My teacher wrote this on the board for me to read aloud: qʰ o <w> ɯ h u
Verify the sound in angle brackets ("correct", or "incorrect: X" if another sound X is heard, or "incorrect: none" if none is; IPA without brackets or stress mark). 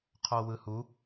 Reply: correct